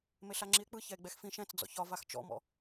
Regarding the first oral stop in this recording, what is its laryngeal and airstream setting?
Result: click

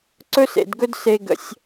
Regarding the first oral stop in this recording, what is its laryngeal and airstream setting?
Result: click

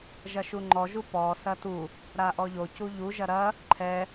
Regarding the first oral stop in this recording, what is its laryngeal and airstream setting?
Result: click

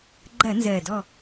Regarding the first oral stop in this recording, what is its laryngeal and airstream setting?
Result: click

